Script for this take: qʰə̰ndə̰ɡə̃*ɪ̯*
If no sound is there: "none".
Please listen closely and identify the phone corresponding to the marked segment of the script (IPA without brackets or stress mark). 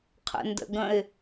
ɪ̯